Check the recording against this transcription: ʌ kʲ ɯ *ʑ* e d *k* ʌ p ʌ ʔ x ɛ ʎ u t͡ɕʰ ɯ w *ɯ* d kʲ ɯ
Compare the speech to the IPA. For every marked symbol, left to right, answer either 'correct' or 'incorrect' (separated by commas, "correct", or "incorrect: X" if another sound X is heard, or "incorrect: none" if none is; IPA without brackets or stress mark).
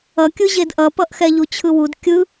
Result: correct, incorrect: ʔ, incorrect: u